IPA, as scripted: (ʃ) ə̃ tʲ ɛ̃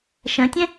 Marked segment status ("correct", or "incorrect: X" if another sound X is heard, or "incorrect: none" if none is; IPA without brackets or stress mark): correct